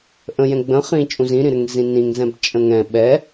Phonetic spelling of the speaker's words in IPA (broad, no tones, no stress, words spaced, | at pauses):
ʔə̃jɛ̃ ɡ͡bə̃ χĩ t͡ʃʼũzĩɾĩɾɘŋ zĩnĩŋzɛ̃b t͡ʃʼə̃ŋɛ̃ ɓɛ